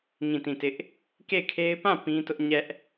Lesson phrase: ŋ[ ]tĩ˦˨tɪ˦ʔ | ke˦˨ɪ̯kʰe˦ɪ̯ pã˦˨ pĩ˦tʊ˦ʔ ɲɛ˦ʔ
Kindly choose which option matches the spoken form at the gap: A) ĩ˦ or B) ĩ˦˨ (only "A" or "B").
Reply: B